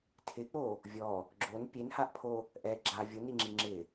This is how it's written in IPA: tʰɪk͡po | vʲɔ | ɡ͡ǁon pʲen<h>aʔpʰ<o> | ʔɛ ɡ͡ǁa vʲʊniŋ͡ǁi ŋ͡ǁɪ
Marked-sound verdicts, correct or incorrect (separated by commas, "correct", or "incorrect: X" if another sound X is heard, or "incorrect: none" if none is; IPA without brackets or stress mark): correct, correct